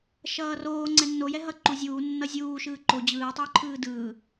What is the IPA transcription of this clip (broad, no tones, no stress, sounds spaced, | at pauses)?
ʃ ʌː r oː ŋ͡ǀ ɛ nː o j ɛ ɦ ʌ ǃ u zʲ uː nː ʌ zʲ uː ʃ ɯː ǃ o d͡ʑ ɯː tˤ oː ǃʰ ɯː d ɯː